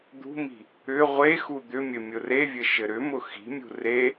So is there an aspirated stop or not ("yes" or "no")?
no